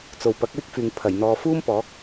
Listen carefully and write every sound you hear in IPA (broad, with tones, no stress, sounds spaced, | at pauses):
t͡s o˨ w p ɐ˨˥ k̚ w ɪ˥ k̚ f yː˨ ŋ pʰ ɐ˨˩ j n̪ ɔː˨ f uː˥ m p ɔː˨˥ k̚